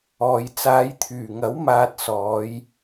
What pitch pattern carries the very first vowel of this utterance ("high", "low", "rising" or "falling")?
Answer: low